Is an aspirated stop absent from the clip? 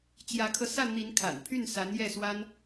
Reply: no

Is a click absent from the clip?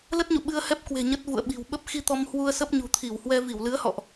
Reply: yes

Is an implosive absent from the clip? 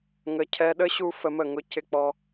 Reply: no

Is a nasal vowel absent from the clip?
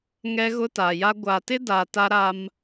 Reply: yes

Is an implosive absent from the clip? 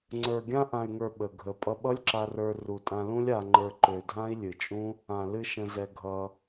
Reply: no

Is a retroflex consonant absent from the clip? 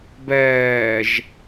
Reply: yes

